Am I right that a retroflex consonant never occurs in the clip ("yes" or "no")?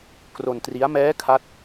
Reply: yes